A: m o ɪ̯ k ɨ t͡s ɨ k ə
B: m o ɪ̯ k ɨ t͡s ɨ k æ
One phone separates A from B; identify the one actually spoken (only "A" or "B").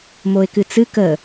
A